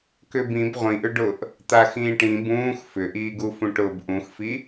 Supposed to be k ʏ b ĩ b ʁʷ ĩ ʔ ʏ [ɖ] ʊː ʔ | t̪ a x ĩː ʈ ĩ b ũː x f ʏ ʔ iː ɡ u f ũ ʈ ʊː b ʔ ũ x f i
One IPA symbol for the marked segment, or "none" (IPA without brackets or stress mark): ɖ